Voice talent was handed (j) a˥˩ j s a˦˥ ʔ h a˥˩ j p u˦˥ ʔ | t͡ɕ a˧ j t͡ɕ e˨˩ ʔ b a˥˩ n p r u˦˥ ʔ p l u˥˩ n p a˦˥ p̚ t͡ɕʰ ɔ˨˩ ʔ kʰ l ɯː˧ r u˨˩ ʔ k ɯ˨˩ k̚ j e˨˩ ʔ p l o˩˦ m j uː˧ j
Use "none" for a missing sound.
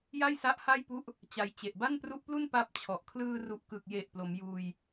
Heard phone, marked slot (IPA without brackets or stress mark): j